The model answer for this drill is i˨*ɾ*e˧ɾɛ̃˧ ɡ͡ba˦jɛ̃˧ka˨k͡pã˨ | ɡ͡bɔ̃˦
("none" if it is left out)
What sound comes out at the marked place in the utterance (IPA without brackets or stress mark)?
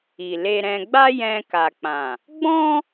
l